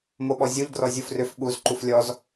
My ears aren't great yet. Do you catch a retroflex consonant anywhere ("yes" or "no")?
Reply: no